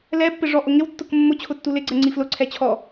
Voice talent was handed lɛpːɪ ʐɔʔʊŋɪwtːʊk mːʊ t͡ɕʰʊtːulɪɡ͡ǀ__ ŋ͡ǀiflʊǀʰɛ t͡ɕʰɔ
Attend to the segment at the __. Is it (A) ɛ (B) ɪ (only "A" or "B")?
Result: A